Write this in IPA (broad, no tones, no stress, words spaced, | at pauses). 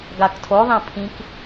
ɡaktʰo ðˤẽpʰĩk